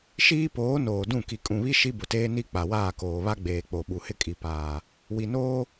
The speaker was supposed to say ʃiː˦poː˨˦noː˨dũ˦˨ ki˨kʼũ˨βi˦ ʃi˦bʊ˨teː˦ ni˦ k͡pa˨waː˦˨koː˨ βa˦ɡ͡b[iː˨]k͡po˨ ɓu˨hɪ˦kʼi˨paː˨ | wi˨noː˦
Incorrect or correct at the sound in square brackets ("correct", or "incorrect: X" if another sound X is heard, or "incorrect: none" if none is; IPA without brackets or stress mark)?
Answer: incorrect: eː˨